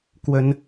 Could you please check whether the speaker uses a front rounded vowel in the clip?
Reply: no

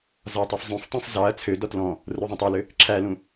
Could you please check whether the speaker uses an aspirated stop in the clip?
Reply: yes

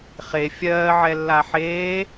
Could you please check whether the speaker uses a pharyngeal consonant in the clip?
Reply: yes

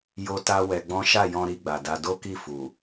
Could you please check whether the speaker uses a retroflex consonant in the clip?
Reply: no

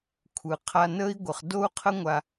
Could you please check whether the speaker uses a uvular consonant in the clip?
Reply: yes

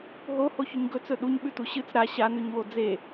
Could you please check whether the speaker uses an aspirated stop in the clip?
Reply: no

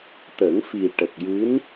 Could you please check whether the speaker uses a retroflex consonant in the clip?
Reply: yes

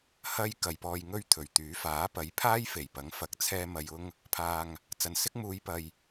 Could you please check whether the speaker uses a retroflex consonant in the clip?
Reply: no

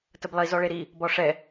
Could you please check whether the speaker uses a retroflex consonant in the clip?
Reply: yes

